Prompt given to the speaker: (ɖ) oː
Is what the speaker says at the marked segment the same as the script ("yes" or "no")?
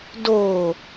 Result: no